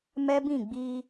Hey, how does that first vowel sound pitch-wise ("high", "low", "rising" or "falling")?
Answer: high